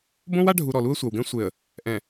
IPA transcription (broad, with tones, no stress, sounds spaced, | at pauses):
b õ˦ w a˦ ɖʱ u˨ ɾ ɔ˨ l u˦ ə̯ sʷ a˨ w ɡ ɛ̃˦ sʷ e˨ ə̯ | ʔ ɛ̃˨